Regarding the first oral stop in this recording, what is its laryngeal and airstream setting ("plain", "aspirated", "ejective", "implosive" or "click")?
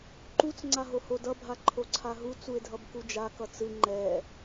click